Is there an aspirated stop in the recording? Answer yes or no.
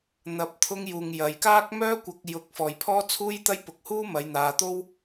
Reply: yes